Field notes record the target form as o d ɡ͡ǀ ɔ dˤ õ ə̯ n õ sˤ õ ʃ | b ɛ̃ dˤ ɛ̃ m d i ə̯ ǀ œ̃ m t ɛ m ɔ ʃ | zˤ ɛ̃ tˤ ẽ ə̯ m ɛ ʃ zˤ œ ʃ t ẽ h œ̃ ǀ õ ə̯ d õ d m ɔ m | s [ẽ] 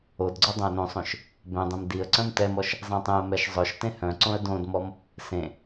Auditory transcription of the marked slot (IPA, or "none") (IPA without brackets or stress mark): ẽ